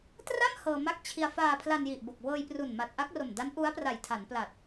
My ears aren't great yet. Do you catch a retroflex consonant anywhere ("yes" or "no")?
no